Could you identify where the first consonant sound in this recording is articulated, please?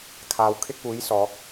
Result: velar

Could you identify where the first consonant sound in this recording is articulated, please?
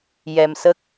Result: palatal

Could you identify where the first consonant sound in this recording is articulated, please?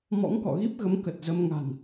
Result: labial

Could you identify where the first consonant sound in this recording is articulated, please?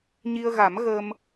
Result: palatal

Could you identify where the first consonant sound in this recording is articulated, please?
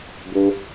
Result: labial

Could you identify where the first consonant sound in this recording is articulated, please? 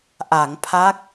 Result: glottal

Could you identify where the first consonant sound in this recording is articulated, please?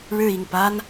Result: retroflex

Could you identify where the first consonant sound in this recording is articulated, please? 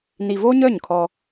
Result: alveolar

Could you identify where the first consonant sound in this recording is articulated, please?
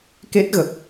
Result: velar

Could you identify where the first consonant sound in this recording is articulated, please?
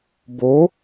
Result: labial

